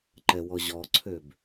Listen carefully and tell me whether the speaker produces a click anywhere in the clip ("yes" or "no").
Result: yes